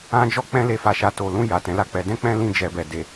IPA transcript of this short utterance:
ã˦d͡ʒɔ˦ k͡pɛ̃˧le˨fa˨ʃa˨ to˨lũ˧ ja˨tɛ̃˨˦la˦˨k͡pɛ˧ dɛ̃˦k͡pɛ̃˦ lĩ˧d͡ʒɛ˨bɛ˨ de˨

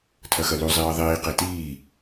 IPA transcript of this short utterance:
tʰɐxɐlu zˤiːðˤiː qetiː

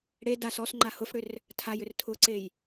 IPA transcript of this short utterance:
ɽe das ɔsŋ͡ǃa hʊfɽʏr | tʰajʏr tʰʊǀej

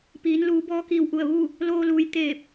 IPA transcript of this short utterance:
piː˩˧nluː˩˧bɔː˧ kiː˧˩wʔu˧˩ə̯ʋu˥˨ | loː˧luː˩˧j t̪eː˧˩p̚

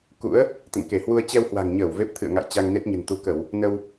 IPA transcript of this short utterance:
kṵ˧˥ə̯ | t̪ə̰˧˨nke˧˩hwu˧ə̯ t͡ɕɛ˧whwa̤˨˩ŋɲəː˧˩w ve˦˥p̚t̪ʰɨ̰˧˨ə̯ŋa̰˧˨j t͡ɕa˧ŋne˦˥t̚ɲə̤˨˩n t̪u˨˦kə˧˩˨w | nə˧w

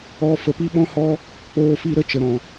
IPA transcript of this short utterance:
ɔ˧ fə˨pi˦ɓɔ̃˦hɔ˦ | k͡poː˧fi˧ɾə˦ t͡ʃə˨ɾɔ̃˨

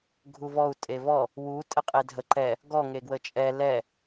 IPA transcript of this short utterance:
ɡʱuvɔu̯ tʼevɔ | wu tʼəqʼedʱə ǃɛ | ɡɔ ŋeɡwət͡ʃʼɛ lɛ

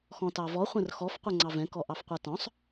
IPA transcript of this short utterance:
xɔ̃tɑvɔ χʷɛ̃rxɔf qʷɛŋ͡ǀɑvɛ̃ kɔʔɑfqʷatɔ̃sˤ

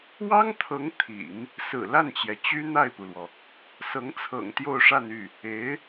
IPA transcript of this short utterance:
wɑ˥ŋt̪ʰɤ˧˥ŋ t̪ʰḭ˨˩˦ŋ | sɹ̩˨˩la˥˩nt͡ɕjɛ˩ t͡ɕy˥n̪a˥˩ɪ̯pu˩lwɔ˩ | sɤ˧˥ŋt͡sʰɤ̰˨˩ŋ t̪jo˥˧ʊ̯ʂa˥˧ny˥˩ | e˧˥ɪ̯

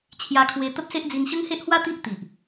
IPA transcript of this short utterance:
t͡ɕʰja˧kʰwe˧ t̪ə˦p̚se˦ʔ d͡zi˧nɕə˦ŋhe˦ʔhwa˦ t̪i˦ʔ t̪i˨ʔ

